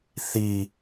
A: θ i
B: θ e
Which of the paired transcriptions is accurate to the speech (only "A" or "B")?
A